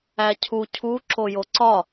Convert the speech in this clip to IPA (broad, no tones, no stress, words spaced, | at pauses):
æcʰu cʰu ǁojoǀɒ